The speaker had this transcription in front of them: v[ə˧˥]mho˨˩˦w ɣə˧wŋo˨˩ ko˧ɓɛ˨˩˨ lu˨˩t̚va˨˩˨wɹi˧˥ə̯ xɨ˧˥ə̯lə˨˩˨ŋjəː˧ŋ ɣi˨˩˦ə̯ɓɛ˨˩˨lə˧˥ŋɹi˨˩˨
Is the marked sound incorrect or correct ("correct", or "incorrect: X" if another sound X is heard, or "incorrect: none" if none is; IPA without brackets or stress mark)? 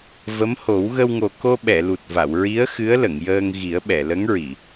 correct